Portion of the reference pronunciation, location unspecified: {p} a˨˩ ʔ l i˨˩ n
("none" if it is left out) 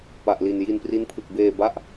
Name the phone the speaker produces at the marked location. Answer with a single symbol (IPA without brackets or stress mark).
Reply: p